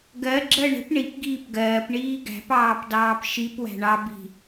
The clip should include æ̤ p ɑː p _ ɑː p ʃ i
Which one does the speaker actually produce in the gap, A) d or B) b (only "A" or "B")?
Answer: A